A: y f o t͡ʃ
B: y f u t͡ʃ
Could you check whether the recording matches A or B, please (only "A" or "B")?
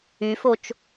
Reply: A